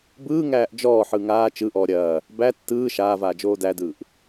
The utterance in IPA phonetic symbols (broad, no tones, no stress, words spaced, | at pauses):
bɯːŋæːʔ d͡ʒɔːħɯ ŋaː t͡ʃɯʔɔː ɾʲɐː | bæ tːɯː ʃaːvaːd͡ʒoː dædɯːʔ